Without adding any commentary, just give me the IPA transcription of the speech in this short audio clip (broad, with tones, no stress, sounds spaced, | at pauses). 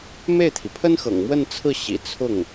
m e˥˩ ɪ̯ t̪ʰ i˩ pʰ ə˥ n x ɤ̰˨˩ ŋ m w ə˥˧ n t͡sʰ ɹ̩˥˩ ɕ ḭ˨˩ t͡sʰ ʊ˥˩ ŋ